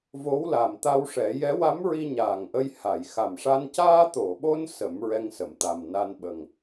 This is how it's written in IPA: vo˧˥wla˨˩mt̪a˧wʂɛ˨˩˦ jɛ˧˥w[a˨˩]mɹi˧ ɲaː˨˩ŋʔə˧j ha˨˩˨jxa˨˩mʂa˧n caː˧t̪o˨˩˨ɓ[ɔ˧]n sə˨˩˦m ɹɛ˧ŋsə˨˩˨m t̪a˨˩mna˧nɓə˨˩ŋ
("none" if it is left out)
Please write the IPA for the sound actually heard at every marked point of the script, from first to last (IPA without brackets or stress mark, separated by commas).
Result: a˧˥, o˧